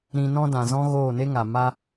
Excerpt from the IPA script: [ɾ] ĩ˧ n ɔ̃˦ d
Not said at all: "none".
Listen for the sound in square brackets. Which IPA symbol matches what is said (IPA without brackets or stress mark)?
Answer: ɾ